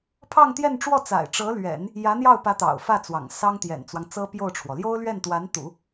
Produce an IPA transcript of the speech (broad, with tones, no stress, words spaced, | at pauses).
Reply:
pʰɑ˥˧ŋt̪jɛ˥˧nʈ͡ʂwɔ˥˩t͡sa̰˨˩ɪ̯ ʈ͡ʂɤ˧˥lɥɛ̰˨˩˦n | jä˧˥n̪jɑ˥˩ʊ̯pä˧˥ t̪ɑ̰˨˩ʊ̯fä˥˩t͡swɑ̰˨˩ŋ sɑ˥ŋt̪jɛ̰˨˩nt͡swɑ˦ŋ t͡sɤ˥pjo˥˩ʊ̯ʈ͡ʂʰwɔ˩ ljo˥ʊ̯lɥɛ˥˩nt̪wa˧˥nt̪ṵ˨˩˦